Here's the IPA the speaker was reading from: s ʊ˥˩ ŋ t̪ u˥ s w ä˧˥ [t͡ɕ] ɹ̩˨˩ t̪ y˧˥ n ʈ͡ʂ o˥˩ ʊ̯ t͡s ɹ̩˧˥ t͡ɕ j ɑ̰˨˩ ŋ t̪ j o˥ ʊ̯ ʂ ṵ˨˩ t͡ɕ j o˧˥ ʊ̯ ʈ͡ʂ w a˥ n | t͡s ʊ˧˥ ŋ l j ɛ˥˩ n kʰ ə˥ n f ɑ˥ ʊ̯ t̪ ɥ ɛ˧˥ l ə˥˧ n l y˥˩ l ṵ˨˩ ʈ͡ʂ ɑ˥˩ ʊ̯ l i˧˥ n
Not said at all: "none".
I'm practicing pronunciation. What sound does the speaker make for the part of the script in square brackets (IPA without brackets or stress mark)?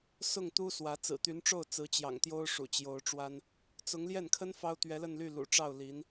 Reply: t͡s